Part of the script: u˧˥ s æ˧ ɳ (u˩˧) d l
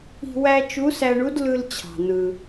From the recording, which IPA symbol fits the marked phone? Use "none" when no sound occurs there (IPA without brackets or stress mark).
u˧˥